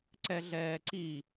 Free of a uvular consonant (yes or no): yes